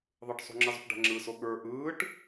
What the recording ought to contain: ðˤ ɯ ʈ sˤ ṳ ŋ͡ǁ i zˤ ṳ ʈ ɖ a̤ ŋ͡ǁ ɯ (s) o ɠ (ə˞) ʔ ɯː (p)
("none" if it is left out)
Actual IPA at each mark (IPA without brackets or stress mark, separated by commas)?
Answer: s, ə˞, ʈ